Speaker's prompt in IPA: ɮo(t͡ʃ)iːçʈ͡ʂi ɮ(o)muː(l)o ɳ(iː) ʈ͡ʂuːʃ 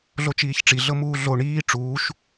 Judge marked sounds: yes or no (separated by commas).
yes, no, no, yes